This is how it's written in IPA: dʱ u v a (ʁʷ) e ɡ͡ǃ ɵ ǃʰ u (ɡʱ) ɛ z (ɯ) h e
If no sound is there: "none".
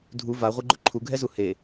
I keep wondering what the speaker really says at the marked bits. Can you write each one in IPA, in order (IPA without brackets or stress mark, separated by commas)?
ʁʷ, ɡʱ, u